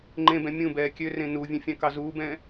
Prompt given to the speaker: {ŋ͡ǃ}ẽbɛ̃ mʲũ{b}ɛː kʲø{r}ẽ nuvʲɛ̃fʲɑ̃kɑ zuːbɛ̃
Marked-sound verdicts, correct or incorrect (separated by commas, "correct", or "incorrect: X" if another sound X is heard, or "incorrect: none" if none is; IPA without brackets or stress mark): correct, correct, correct